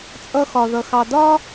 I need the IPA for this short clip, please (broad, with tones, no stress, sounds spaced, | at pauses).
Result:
t͡sʼ ʌ˧ x ɒ˨ ð ʌ˨ x ɑ˨ d ɒ˦